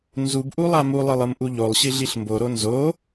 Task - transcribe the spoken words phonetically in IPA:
nzubʔu lˠamulˠɯlˠ ɯmʔuʎolˠɕi ɮiɬmboɾo nzo

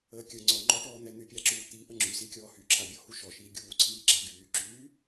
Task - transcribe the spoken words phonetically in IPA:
əːkʲə ŋ͡ǀɔŋ͡ǃɔʈɔːn̪ɛ n̪ypʲaǁuːt̪i ʔəŋ͡ǁysikʲɔː hyǁʰabʲɔhu ʃɔʃiː ɡʲuːǀʰiː ɡ͡ǁaɡyːǁyː

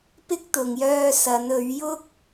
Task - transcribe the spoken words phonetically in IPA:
pɪ˥k̚t̪ʊ˨ŋjœː˧ sɐ˨˧n ɵ˨˧ɥjʊ˥k̚

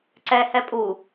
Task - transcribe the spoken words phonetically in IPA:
ǀɛ hɛpʼu

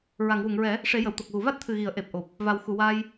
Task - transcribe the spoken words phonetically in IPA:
ɹa˨˩˨ŋwu˨˩˨ŋɹɛ˨˩˦ | ʂe˨˩˦jə˨˩˨wt̪o˨˩k̚ɣu˨˩˨ va˦˥t̚t̪ʰɨ˨˩ɣi˨˩˨ə̯ ʔe˨˩p̚ ʔo˨˩p̚ | va˨˩w xu˨˩˨waː˧j

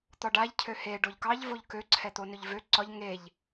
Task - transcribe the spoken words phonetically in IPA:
t̪ɒɖaʎ cʰøheɖoʎ kɑʎvoʎ køǀʰɛt̪o nɵʎvø ǀɒʎ ŋeʎ

